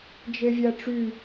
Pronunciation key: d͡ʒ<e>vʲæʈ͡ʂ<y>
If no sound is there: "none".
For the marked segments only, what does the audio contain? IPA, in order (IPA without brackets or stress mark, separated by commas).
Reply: e, y